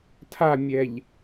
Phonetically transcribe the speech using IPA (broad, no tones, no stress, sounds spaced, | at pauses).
tʰ a mʲ ɛ ʎ